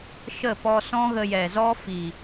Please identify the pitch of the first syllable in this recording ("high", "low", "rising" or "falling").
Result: falling